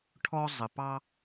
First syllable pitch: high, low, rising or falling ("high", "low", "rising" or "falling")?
high